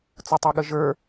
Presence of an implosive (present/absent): present